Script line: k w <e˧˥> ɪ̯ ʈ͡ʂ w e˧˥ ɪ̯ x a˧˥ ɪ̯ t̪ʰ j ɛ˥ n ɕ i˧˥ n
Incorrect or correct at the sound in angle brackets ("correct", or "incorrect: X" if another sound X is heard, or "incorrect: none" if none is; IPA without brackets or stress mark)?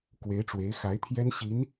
correct